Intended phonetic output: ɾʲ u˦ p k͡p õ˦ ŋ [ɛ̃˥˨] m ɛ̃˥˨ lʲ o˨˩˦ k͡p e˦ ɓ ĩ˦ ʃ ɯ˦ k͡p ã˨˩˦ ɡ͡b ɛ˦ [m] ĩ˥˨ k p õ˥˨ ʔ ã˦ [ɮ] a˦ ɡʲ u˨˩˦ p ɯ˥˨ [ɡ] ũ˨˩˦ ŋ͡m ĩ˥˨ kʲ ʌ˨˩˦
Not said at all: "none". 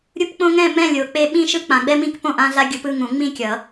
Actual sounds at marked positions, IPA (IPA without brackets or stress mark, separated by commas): ɛ̃˥˨, m, ɮ, ŋ